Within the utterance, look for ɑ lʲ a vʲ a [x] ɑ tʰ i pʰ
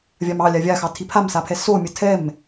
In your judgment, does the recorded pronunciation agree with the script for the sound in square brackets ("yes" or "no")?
yes